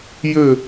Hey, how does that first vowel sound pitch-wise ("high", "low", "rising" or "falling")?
falling